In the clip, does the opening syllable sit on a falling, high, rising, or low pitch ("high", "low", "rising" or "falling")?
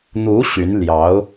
rising